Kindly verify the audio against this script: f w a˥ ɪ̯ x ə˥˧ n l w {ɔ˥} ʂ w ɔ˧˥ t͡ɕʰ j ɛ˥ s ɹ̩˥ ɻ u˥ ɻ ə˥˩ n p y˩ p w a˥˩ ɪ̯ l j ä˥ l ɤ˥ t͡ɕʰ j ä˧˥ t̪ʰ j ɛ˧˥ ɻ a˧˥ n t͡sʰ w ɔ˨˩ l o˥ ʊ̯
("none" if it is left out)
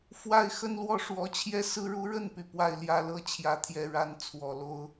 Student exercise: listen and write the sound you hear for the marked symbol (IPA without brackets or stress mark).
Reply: ɔ˥˩